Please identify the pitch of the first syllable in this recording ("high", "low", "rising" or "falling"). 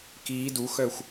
rising